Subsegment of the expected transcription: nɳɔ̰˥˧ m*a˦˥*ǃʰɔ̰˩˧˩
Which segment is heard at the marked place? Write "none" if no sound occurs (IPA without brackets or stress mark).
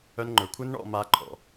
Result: a˦˥